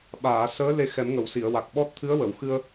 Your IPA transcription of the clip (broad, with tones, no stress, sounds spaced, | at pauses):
ɓ aː˨˩˨ s əː˧˥ l e˧ x ɛ˨˩˦ m ŋ ə˨˩˨ w s i˨˩˨ ə̯ w a˨˩ k̚ ɓ ɔ˦˥ t̚ t̪ʰ ɨ˧˥ ə̯ w ə˨˩˨ w x ɨ˧ ə̯